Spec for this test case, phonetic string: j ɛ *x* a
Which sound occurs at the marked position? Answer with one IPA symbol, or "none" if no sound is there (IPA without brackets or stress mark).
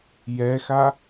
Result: x